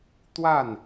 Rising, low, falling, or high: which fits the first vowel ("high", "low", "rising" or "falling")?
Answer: falling